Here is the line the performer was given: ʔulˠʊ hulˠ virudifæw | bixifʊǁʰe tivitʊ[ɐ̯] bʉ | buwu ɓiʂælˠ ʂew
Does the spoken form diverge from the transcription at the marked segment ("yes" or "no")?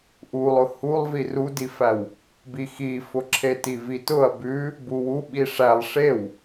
no